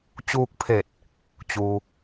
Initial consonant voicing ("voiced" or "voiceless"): voiceless